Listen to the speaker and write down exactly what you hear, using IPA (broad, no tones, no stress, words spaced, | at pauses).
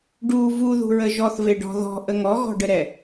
ɖu vuðṳɹə ʒɔθveɖɔ̤ ðɔ̤ʔə ŋɔɣɔ̤ɖəɾɛ